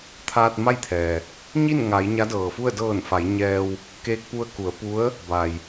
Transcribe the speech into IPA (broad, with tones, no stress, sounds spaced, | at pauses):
t̪ʰ aː˧ t̚ m a˥˨ j t̪ʰ ɛː˩ | ɲ i˥˨ n ŋ a˩˧ j ɲ a˧˥ d ɤː˩ f u˥˨ ə̯ d ɤː˧˩ n f a˩˧ j ɲ ɛː˧ w | k eː˧ k̚ p u˧ ə̯ k u˩˧ ə̯ p u˧˥ ə̯ | b a˩ j